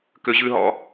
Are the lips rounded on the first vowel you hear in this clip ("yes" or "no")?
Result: yes